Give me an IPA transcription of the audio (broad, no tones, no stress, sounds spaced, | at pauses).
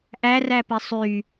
ʔ æ r æ p e sˤ y